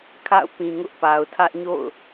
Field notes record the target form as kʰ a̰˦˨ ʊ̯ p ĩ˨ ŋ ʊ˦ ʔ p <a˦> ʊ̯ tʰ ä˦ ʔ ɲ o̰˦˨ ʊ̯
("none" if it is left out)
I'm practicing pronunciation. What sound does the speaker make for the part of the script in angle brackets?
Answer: a˨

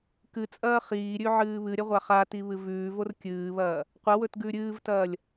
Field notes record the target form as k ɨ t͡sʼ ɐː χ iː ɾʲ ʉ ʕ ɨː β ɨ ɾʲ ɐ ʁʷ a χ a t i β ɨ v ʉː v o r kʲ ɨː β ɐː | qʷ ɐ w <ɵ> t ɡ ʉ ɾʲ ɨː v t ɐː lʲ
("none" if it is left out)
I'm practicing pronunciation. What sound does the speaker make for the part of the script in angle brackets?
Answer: ɵ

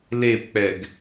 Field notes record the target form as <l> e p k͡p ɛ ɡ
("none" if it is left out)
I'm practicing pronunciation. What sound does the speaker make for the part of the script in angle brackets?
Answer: l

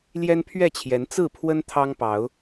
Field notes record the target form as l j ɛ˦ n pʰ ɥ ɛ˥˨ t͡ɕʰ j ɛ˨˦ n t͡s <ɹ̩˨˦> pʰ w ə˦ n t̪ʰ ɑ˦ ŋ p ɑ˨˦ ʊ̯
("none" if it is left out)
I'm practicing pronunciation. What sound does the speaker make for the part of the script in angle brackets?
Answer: ɹ̩˥˨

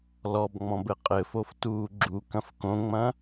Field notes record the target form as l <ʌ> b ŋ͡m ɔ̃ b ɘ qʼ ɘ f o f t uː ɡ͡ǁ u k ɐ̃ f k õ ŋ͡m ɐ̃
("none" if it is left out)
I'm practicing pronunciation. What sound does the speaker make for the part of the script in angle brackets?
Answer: ɔ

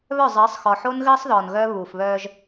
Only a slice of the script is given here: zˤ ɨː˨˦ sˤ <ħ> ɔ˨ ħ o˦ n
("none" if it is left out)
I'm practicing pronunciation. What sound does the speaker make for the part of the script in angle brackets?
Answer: x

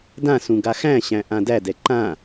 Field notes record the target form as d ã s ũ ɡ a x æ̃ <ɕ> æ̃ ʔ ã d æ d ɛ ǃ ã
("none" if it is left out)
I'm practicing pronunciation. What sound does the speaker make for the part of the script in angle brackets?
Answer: ɕ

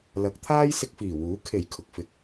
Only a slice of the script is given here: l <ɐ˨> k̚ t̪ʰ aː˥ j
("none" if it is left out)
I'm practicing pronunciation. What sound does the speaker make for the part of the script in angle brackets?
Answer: ɐ˨˥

